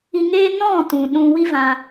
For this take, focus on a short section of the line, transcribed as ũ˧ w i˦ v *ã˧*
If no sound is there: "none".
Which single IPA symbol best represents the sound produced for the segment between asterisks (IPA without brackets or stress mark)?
ã˧